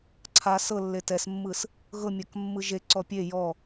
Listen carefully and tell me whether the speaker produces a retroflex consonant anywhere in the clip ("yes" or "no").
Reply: no